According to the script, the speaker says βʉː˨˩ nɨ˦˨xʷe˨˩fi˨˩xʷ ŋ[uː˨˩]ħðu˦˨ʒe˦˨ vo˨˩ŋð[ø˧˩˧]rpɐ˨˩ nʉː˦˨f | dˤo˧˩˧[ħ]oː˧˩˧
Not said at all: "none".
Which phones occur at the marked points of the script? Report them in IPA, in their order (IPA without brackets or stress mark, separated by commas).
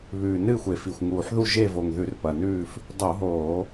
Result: uː˨˩, ʉ˧˩˧, ɦ